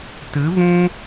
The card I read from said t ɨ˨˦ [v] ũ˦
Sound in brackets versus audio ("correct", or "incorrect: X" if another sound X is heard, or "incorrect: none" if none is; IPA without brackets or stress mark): correct